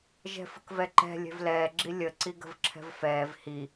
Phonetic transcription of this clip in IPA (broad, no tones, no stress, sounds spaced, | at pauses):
ʒ ɛ̤ f ə̤ k v ɛ ǃ ɛ̤ lʲ ɛ̤ v l ɛː ɡ͡ǁ i lʲ ə ǀ i ɡ ə̤ v ǁʰ ɛ̤ v f ɛː v h i